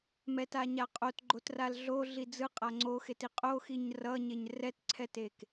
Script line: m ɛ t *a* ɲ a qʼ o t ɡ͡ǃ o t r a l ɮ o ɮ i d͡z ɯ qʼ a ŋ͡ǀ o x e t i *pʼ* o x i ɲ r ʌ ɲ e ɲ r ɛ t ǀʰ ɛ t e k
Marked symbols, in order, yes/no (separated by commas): yes, no